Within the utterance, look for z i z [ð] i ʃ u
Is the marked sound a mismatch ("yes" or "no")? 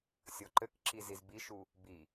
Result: yes